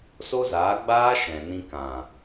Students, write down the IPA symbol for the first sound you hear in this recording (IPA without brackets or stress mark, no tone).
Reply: s